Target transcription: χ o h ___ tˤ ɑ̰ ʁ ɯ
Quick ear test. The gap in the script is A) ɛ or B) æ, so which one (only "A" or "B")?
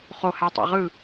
B